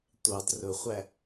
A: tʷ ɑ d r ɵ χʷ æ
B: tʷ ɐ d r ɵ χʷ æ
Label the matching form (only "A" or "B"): A